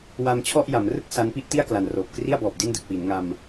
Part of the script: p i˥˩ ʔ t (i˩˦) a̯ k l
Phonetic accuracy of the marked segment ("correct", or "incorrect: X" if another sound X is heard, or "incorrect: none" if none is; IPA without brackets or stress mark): incorrect: i˥˩